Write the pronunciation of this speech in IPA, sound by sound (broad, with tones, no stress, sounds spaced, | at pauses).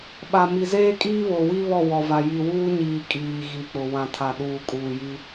ɓ a˨ m i˨ z eː˦ kʼ iː˦ β o˨ w i˦ β ɔ˦˨ w ɔ˨ v a˨ j i˨ w uː˦ ɲ iː˨ kʼ iː˨ ɣ i˨ k͡p ʊ˨ w ã˨ tʰ a˨ ɗ uː˨ kʼ uː˨ j i˦